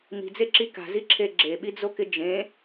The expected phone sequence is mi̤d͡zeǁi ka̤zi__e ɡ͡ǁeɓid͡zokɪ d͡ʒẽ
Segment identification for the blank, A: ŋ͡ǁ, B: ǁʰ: B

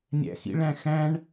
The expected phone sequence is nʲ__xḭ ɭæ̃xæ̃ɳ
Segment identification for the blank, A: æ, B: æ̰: B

